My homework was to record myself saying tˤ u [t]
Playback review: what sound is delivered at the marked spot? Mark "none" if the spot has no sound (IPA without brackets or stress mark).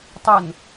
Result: n